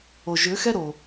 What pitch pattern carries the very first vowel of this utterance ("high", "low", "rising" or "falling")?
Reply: low